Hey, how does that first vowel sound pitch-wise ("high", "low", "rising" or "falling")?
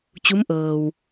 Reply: rising